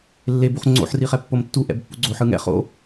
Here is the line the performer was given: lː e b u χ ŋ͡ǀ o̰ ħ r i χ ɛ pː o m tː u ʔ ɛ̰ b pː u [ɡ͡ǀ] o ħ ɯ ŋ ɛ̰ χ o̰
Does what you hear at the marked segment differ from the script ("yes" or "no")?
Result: no